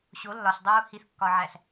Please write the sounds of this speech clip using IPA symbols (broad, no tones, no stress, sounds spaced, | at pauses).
ɕ o lː ɒ ɬ dˤ uː h i θ kː ɒ ʕ æ ɬ